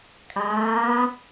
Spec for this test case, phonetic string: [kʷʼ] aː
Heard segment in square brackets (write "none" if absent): kʼ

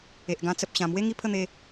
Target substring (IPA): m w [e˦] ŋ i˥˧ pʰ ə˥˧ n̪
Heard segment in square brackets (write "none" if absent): e˦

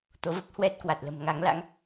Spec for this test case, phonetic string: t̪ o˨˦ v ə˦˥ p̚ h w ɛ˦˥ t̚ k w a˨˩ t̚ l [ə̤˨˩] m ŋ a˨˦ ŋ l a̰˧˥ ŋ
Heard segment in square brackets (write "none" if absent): ə̤˨˩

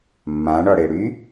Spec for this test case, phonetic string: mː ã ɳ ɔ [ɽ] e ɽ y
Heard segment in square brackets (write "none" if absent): ɽ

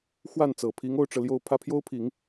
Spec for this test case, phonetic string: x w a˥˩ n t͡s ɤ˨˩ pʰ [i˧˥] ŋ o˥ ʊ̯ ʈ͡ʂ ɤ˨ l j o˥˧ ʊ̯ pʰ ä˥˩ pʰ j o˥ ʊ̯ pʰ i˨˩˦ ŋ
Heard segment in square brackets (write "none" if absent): i˧˥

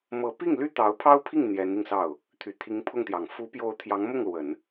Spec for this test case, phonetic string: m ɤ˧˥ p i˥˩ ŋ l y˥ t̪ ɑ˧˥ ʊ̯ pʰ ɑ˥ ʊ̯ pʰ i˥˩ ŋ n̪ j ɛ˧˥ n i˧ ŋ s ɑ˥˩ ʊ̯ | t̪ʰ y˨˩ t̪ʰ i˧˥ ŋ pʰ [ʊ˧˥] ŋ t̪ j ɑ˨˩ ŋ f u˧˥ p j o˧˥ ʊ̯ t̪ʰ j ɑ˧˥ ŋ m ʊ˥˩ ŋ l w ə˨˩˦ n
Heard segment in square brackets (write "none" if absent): ʊ˥˩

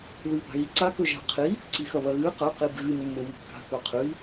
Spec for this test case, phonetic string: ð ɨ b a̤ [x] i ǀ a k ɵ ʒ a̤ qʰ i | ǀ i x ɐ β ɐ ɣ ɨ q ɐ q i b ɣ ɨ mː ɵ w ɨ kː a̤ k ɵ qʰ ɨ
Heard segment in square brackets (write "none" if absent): ɣ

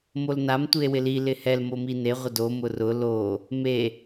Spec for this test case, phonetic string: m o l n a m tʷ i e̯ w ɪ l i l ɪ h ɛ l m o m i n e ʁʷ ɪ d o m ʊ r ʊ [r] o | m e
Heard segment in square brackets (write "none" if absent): l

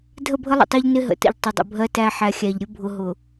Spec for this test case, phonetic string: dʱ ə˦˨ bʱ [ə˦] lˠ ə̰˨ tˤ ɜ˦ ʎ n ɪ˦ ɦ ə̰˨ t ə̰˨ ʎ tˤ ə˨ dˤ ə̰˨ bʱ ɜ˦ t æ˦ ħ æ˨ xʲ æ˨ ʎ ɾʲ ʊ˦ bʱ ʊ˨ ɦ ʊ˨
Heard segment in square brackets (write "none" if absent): ə˦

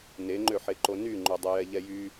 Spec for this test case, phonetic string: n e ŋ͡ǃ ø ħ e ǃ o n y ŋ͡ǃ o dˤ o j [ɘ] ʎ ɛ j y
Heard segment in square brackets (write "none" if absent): ɛ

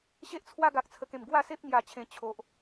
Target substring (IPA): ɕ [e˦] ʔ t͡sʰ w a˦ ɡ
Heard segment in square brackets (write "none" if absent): e˦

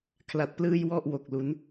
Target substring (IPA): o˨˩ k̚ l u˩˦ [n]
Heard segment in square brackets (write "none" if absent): n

